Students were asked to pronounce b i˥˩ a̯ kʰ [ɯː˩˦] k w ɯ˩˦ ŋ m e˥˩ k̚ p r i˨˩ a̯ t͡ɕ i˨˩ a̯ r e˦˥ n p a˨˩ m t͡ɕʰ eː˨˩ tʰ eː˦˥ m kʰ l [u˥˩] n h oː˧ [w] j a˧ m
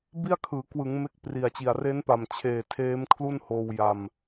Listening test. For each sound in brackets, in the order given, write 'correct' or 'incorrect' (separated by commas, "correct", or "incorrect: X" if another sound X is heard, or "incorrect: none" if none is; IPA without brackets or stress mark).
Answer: correct, correct, correct